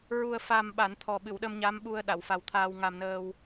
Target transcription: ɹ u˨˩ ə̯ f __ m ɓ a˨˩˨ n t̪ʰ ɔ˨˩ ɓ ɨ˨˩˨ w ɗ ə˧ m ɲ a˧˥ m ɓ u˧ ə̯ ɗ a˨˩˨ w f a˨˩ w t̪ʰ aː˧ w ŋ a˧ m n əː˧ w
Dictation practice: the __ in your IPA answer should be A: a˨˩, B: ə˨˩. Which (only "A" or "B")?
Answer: A